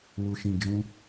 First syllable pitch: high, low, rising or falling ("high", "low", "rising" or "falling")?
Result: low